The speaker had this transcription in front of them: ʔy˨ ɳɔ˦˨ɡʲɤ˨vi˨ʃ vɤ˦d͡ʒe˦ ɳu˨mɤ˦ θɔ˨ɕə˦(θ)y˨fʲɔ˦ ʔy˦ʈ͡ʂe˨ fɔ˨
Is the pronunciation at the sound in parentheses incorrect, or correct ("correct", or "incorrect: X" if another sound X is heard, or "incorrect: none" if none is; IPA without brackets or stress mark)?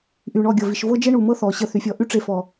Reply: correct